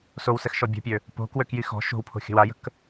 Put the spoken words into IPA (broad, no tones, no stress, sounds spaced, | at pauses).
s o w s ɛ x ʃ ɔ bʲ o̤ pʲ ø | p o̤ k w ø k j i x ɔ̤ ʃ o̤ w pʰ o̤ xʲ ə̤ w a j ə̤ k